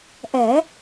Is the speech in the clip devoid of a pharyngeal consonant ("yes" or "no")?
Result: yes